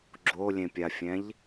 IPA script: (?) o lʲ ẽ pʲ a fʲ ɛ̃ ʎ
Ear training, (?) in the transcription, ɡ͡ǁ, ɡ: ɡ͡ǁ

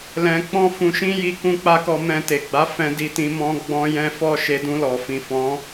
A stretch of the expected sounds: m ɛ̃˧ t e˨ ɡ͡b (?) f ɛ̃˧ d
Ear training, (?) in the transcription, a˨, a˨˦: a˨˦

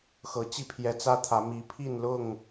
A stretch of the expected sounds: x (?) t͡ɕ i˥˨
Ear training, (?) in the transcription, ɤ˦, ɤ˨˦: ɤ˨˦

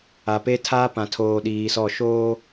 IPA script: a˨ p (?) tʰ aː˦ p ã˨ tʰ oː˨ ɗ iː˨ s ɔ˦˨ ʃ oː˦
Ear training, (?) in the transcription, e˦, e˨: e˦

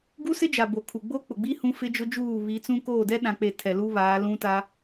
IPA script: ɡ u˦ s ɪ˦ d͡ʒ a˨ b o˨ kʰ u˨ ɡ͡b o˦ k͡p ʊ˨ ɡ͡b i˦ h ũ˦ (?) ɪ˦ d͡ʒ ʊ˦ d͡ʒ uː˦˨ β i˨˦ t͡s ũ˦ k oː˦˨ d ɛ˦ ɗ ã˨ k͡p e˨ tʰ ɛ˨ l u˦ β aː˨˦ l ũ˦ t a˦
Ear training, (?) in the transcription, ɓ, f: f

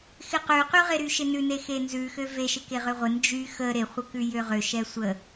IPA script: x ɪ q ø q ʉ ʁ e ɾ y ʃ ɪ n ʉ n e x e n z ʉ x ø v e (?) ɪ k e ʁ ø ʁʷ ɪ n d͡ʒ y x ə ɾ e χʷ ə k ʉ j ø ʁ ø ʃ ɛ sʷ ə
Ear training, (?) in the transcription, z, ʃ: ʃ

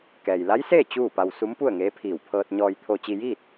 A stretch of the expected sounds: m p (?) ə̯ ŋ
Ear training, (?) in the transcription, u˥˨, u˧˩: u˥˨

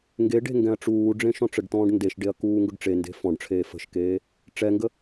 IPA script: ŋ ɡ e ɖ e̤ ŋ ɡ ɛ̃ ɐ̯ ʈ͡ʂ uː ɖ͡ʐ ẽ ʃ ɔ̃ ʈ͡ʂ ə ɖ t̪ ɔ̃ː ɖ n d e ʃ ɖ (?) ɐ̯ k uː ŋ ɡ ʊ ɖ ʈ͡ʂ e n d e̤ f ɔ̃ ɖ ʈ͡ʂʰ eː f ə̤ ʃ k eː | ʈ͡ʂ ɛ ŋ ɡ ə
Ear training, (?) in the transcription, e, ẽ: e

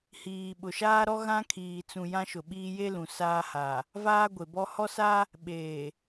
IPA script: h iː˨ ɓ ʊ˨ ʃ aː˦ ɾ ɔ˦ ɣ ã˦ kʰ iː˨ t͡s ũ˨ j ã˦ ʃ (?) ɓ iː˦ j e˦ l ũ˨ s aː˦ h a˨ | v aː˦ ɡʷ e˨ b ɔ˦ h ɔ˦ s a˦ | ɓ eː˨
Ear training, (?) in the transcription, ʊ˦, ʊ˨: ʊ˨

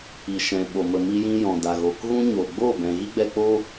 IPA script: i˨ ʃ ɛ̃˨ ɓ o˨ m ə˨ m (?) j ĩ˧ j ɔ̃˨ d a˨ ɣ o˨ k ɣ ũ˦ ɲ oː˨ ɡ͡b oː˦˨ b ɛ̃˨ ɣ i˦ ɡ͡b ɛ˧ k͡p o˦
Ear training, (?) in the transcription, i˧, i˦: i˧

